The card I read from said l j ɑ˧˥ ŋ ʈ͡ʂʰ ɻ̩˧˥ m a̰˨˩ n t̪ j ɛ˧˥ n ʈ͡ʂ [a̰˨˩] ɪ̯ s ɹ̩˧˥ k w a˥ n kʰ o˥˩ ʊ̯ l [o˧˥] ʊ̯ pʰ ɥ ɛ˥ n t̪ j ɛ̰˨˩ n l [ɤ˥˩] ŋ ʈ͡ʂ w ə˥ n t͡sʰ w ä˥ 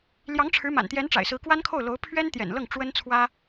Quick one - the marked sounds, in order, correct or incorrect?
correct, correct, correct

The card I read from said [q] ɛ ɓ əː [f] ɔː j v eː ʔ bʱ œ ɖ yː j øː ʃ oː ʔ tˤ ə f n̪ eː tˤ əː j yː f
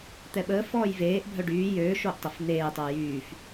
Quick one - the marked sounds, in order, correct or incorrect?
incorrect, correct

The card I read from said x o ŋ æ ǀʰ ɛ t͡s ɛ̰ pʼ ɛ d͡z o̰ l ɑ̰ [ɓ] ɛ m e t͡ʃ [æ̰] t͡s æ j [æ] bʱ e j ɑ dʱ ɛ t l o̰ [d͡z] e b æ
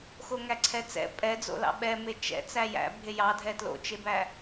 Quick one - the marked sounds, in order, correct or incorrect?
correct, incorrect, incorrect, incorrect

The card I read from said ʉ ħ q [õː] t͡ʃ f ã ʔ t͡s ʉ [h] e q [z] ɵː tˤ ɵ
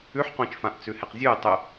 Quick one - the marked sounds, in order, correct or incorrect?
correct, correct, incorrect

